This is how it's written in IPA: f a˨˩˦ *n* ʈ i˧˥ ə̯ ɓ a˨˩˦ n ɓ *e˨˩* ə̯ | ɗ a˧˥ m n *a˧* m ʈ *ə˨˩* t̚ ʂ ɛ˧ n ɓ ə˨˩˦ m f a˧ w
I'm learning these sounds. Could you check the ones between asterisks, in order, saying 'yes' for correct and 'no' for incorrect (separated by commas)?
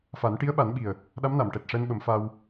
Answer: yes, no, no, no